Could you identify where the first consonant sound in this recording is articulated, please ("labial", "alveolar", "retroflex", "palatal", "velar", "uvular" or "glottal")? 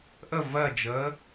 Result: glottal